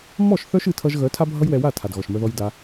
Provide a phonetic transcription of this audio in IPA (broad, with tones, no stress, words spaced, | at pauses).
mɔ˦˨ʃ θœ˦ʃ ɨ˨˦tʰʌ˧ʒɣœ˨˦ tʰa˦bʱʌ˦jwɛ˧wa˦˨ tʰa˨dɣɔ˨ʃmœ˧ ðɔ˧jda˧